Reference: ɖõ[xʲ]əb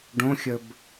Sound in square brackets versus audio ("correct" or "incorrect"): correct